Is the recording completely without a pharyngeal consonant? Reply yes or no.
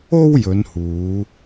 yes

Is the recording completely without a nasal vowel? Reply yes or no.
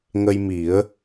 yes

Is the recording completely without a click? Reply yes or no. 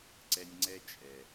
no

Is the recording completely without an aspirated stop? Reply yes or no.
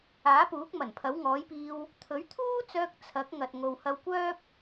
no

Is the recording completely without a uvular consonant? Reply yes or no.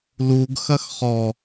no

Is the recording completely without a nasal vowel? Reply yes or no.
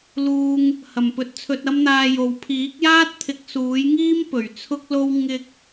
yes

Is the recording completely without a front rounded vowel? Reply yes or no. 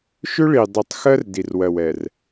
no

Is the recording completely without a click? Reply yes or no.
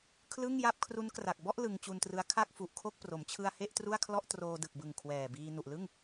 yes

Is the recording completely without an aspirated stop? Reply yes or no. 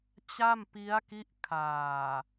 no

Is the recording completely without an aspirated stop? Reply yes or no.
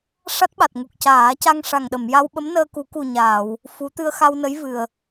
yes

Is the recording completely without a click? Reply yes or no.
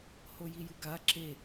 no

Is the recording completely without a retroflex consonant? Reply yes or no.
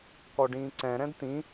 no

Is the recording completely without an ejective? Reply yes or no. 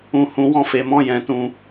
yes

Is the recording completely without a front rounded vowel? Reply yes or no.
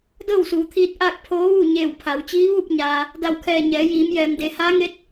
yes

